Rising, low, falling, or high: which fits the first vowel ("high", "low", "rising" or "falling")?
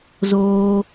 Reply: high